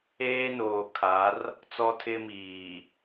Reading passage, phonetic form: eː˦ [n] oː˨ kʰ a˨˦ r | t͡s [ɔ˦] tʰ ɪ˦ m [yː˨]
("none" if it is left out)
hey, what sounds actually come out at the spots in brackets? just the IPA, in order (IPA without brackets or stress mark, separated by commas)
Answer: n, ɔ˦, iː˨